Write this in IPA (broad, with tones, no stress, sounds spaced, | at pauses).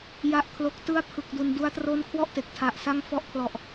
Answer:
j a˦˥ ʔ kʰ l o˦˥ k̚ t ɯ˥˩ a̯ pʰ ɯ˨˩ k̚ d u˨˩ n d u˦˥ a̯ t r o˦˥ n kʰ w ɔ˥˩ ʔ t e˨˩ k̚ tʰ a˨˩ ʔ s a˦˥ ŋ f ɔ˦˥ ʔ kʰ l ɔ˨˩ ʔ